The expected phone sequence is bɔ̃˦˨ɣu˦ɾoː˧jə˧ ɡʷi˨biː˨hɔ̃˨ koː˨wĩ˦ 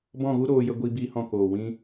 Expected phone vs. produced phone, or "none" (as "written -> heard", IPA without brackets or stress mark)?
none